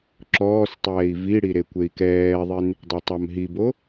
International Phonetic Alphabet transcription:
ǁ ɔː s tˤ ɛː i̯ v i ɽ i ɾ e kʷ e i̯ k ɛː ðˤ i n | dˤ ɛ tˤ a m ɦ i b o

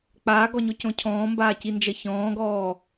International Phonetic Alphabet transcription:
k͡p aː ɡ ɔ ɲ o c õ cʰ ɔ̃ː m b aː c i n d͡ʒ ɐ ç ɔ̃ː ɡ ɔː

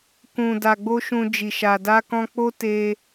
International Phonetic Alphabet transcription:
k ũ˨ d a˨ ɡ͡b o˧ ʃ ũ˧ d͡ʒ i˨ ʃ a˨ d a˧ k ɔ̃˧ k͡p o˦ t e˧

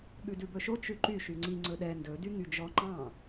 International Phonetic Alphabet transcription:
ɠ ʉ d ʉ b ɵ ʃ o t͡ʃ ʉ ǃ y ʃ y ŋ͡ǀ i ŋ͡ǀ ɵ ɗ ɛ n d ɵ d y ŋ y d͡ʒ ɔ ŋ͡ǃ ɑ̃

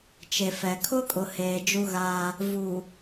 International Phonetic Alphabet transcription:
t͡ʃ e˨ f ɛ˨ kʰ ʊ˦ kʼ ʊ˨ h eː˨ d͡ʒ u˦ ɣ a˦ | v u˨

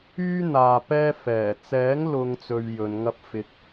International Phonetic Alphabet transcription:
yː˥ n̪ aː˨ p ɛː˥ f ɛː˨˩ t͡s ɛː˨˥ ŋ l ʊ˨ ŋ t͡s ɵ˨ ɥ j ɵ˨˧ n ŋ ɐ˥ p̚ f ɪ˧ k̚

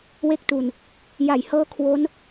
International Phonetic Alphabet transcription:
w e˥˩ k̚ t u˧ n | j a˩˦ j h ɤː˦˥ kʰ w o˦˥ n

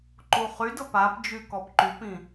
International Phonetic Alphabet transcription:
ǃ u χ y d ɤ p a p d͡ʒ y k ɔ p ǃ y p ĩ

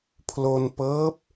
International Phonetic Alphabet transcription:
pʰ l o˧ n p ɤː˦˥ p̚

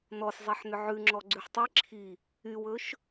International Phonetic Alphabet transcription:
n ɔ s zˤ e ħ n ʏ ʕ ʉ ŋ͡ǁ ɔ ɡ͡ǀ ʉ ħ tˤ i ǁʰ i | y w ɵ ʃ

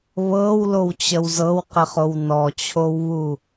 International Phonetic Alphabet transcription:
β ɤ w l o w t͡ɕ ə w z ɤ w q ɪ χ o w n ɔ t͡ɕʰ o w β u

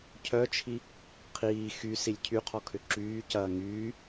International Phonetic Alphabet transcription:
cʰ œ t͡ʃʰ i | qʰ iː x y s i lʲ cʰ y qʰ ɔ kʰ ʏ ǁ yː c ɐː ŋ yː

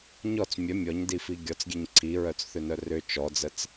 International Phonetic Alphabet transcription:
ɲ ɔ t͡s mʲ œ mʲ ɔ ɲ d i f i ɡʲ ɔ t͡s ɡʲ e ɲ ǀʰ i ɹ œ t͡s θ ʏ n œ r ʏ t͡ʃ ɔ d͡z ə t͡s

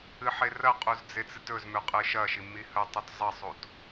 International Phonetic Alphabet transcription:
ɨ ħ e r ɐ qʼ u z d͡z e t͡s ɨ t ɵ z m ʉ qʼ ɨ ʃ ɐ ʃ i m i h ɵ tˤ u t zˤ ɐ sˤ u t

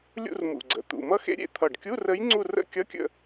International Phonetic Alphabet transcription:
lʲ ṵ˥˧ r m ṵ˨˩ ɡ͡ǀ ə̰˨˩ t̪ ṵ˨˩ m ʌ˧˥ x ḛ˧ ɾʲ ḛ˥˧ t̪ʰ ʌ˨˩ ɖ kʲ u˧˥˧ r ə˧˥ j ŋ͡ǀ u˥˧ r ə̰˥˧ kʲ ʌ˧˥˧ kʲ ə̰˥˧

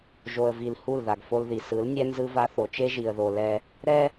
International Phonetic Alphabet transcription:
ʒ o˨ ə̯ v i˨ l h u˦˨ l ð a˨ ɡ f o˦ l ð i˨ s ɯ˨˦ l nʲ ɛ˦ n z ɯ˦ v a˦ θ o˨ t͡ʃ e˦ ʒ i˨ ə̯ ð o˨ l ɛ˦ | ɾ ɛ˦

